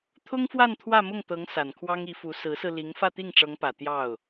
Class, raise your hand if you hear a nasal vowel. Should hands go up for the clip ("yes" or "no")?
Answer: no